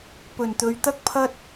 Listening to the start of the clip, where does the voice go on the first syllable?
low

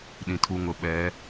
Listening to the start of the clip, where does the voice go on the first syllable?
low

